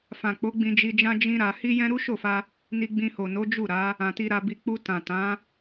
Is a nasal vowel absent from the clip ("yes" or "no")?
no